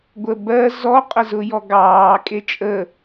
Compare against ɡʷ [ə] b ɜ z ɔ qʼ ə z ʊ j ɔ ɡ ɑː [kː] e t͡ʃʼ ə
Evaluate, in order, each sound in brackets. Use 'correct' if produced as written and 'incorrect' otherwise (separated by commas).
correct, incorrect